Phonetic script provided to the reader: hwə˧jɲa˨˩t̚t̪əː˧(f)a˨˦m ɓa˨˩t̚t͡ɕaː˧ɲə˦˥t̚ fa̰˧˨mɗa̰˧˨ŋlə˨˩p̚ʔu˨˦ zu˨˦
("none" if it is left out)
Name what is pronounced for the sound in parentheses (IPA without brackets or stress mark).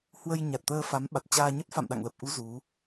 f